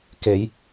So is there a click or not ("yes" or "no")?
no